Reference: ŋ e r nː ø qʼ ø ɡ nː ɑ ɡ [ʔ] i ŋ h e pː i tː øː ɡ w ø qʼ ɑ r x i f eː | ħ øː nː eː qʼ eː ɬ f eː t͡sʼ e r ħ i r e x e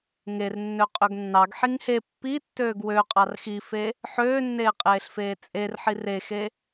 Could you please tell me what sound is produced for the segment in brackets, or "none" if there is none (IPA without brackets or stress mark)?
ħ